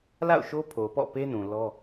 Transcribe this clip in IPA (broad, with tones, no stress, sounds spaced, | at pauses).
l a̰˦˨ ʊ̯ ʃ o˦ pʰ o˨ p ɔ̰˦˨ p e˦ n ũ˨ l ɔ˦